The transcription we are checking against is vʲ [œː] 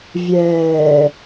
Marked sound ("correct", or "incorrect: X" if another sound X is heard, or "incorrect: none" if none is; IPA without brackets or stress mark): incorrect: ɛː